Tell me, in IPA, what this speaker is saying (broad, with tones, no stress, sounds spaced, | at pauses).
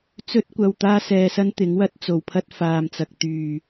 t͡s ɵ˥ t̚ kʷ ɐ˧ w t̪ aː˥ s ɛː˧ s ɐ˥ n t̪ ɪ˨˥ ŋ w ɐ˥ t̚ t͡s o˨ w pʰ ɐ˥ t̚ f aː˨ m t͡s ɐ˨ k̚ t̪ yː˨˩